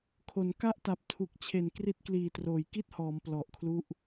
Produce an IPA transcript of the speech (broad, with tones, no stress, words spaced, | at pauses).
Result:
kʰo˩˦nka˥˩ʔta˨˩p̚ tʰu˨˩k̚t͡ɕʰe˨˩n kri˦˥t̚kliː˨˩troː˩˦j ki˥˩t̚hɔː˩˦m plɔ˨˩ʔkʰlu˦˥ʔ